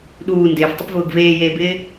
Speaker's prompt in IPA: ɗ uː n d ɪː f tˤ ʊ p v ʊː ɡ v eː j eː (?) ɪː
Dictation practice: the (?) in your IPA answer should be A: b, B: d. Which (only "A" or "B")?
A